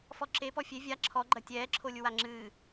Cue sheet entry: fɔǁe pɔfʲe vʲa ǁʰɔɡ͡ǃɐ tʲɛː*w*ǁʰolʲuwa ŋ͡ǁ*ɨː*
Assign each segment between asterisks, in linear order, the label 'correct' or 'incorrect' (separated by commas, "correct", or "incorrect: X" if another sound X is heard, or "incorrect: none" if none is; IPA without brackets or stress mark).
incorrect: none, correct